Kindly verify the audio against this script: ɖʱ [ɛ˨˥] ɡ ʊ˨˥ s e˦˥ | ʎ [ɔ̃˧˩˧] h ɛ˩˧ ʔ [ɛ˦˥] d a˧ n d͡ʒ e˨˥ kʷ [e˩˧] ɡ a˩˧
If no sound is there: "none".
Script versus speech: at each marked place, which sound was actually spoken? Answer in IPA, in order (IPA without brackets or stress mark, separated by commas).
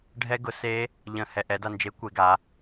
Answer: ɛ˦˥, ə̃˧˩˧, ɛ˨˥, e˩˧